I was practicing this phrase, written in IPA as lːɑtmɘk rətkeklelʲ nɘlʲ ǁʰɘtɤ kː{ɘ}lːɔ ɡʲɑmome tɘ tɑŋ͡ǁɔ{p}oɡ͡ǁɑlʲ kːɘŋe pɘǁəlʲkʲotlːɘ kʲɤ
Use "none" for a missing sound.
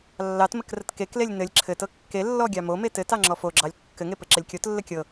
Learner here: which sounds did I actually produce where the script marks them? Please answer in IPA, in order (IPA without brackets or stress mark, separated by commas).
e, f